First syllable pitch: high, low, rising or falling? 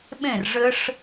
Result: falling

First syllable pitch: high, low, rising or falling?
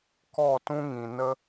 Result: falling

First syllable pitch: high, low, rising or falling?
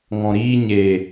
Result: low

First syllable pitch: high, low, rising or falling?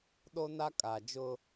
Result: high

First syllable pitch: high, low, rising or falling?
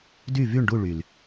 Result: falling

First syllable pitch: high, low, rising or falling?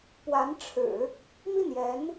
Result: rising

